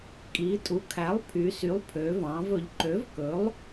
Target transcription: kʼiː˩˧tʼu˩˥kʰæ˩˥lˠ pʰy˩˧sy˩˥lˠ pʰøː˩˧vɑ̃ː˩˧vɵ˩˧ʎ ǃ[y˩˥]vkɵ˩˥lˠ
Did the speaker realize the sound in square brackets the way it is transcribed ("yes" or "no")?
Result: no